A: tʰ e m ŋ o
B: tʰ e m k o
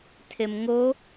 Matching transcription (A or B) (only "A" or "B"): A